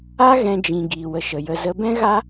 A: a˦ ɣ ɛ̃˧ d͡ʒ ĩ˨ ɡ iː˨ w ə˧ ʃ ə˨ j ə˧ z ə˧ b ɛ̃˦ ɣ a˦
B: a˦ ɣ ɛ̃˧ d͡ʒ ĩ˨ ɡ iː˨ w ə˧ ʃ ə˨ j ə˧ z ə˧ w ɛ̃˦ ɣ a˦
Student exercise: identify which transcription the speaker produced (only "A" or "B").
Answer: A